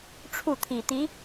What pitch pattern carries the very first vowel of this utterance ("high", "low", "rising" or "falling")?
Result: falling